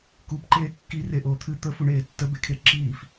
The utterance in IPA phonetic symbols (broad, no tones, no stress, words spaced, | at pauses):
kupǃeː kːireʔoː t̪ʰɨ t̪əfuɳeː tːəbekʰe ǁiːf